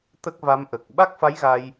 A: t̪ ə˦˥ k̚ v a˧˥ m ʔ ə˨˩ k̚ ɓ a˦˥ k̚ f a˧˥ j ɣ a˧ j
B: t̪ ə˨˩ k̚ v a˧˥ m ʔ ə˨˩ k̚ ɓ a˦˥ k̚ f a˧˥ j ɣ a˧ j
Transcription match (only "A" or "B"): A